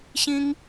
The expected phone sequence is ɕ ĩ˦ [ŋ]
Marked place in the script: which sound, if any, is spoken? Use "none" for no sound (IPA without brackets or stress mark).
ŋ